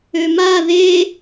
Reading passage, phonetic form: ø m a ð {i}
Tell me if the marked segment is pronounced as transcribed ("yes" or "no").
no